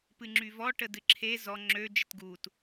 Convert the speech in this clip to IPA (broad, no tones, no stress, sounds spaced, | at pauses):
p ɨ ŋ͡ǁ y v ɔ ʈ ə d ɨ ǁʰ e z ɔ ŋ͡ǁ ø d͡ʒ ə t ɡ u t